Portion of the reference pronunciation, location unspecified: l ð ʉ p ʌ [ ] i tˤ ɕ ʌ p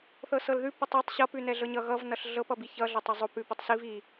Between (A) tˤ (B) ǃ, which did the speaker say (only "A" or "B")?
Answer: A